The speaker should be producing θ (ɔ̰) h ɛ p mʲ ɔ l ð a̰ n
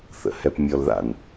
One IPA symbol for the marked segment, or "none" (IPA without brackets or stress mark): ə̰